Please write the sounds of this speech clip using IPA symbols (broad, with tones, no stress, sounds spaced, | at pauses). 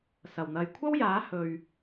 s ɐ˨˩ w n̪ ɐ˨ j kʷʰ ɐ˥ w j aː˨˥ h ɵ˨ ɥ